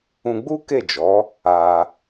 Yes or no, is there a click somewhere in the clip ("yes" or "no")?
no